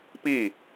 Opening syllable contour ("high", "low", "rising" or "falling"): falling